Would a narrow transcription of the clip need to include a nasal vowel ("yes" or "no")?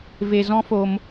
yes